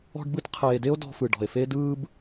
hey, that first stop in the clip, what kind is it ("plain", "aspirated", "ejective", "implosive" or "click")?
plain